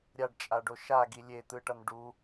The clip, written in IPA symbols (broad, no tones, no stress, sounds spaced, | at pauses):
ɾʲ a ɖ t͡ʃʼ a ɖ o ʃ a ɡ i lʲ e t̪ ɯ ʈ ʌ n ɖ u